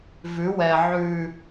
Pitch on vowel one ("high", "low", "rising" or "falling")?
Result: rising